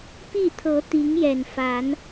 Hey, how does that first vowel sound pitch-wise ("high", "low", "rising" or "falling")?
falling